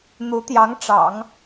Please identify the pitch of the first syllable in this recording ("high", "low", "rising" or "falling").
rising